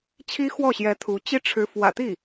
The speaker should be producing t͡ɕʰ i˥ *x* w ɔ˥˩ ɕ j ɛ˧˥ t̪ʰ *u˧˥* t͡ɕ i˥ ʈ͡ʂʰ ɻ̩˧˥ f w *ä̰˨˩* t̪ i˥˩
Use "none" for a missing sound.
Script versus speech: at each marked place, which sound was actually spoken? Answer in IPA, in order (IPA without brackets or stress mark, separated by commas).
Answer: x, u˧˥, ä̰˨˩